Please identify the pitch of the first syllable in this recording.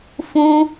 high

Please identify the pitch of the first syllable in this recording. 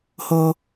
low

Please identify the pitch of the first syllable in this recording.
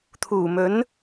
low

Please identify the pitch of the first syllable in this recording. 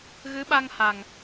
rising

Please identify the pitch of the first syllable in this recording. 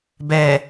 low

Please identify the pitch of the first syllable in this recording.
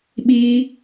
high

